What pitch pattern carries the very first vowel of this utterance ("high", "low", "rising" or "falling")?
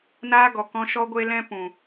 high